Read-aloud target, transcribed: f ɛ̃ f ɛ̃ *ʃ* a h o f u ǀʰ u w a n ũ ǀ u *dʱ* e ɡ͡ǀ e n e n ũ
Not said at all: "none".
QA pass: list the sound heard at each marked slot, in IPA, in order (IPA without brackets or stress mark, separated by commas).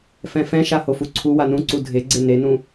ʃ, dʱ